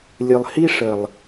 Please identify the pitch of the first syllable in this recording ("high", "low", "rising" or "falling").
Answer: low